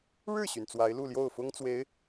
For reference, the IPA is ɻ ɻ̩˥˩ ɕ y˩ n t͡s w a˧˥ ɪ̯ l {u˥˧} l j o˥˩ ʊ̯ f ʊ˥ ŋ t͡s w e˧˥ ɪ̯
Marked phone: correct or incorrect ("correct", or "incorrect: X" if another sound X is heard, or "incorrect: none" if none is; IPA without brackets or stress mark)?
correct